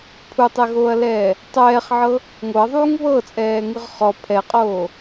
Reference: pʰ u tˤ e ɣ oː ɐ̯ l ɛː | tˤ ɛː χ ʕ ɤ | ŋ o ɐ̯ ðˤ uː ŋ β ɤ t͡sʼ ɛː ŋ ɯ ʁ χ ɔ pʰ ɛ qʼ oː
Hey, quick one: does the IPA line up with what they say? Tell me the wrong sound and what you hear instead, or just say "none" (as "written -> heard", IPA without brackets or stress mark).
none